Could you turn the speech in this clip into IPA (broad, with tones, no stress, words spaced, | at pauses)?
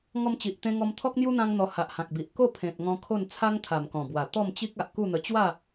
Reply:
ŋɔ˧mt͡ɕi˨ʔt̪ẽ˧ŋɔ˧m t̪ʰɔ˦k̚n̪ju˦n̪ã˧ŋn̪ɔ˨˩ ha˨ʔhã˨k̚bi˨ʔ ko˥˧ pʰẽ˨t̚ ŋɔ̃˧kʰo˥˧n t͡sʰa˦ŋt̪ʰa˨˩mkɔ̃˨˩bwa˨˩ t̪ɔ˥˧mt͡ɕi˦k̚ a˨ʔku˥˧n̪ə˧ t͡ɕwa˥˧